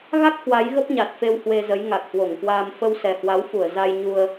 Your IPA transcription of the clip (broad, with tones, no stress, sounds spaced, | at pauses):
ɣ a˦˥ k̚ h w a˨˦ j ɣ ə˦˥ p̚ ɲ a˨˩ t̚ f e˧ w h w e˧ z ə˨˦ j ŋ a˨˩ k̚ h w o˧˩ ŋ k w aː˧ m f ə˧ w s ɛ˨˩ h w a˨˦ w f u˧˩ ə̯ z a˧ j ɲ u˧ ə̯